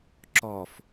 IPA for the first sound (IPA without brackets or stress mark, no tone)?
ǁ